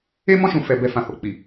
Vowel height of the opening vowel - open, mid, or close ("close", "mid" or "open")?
mid